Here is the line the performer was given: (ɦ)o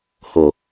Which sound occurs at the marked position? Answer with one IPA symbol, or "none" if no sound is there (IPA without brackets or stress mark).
h